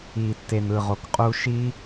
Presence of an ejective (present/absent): present